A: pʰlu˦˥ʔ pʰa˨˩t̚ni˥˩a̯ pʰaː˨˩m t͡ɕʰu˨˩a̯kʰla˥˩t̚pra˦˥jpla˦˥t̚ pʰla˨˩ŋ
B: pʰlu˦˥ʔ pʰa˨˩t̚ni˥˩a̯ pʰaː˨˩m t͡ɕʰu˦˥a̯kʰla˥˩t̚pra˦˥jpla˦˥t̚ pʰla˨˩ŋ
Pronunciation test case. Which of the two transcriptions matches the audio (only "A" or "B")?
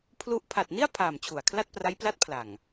A